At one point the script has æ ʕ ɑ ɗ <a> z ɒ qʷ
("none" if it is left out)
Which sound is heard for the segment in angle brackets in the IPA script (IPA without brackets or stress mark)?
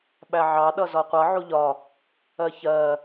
ʌ